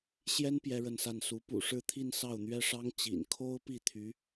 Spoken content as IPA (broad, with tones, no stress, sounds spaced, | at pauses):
ɕ j ɛ˥ n p j ɛ˥ ɻ ə˥˧ n s a˥˩ n s u˧˥ p ṵ˨˩ ʂ ɻ̩˥˧ t̪ʰ i˥˧ n s ɑ˥˩ ʊ̯ n̪ ɥ ɛ˥ ʂ ɑ˥ ŋ t͡ɕ ḭ˨˩ n kʰ o˥ ʊ̯ p i˥˩ t̪ʰ y˧˥